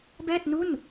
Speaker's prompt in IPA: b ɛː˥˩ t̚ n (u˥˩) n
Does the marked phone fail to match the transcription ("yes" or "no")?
no